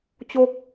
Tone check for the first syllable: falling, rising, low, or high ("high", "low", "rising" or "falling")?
high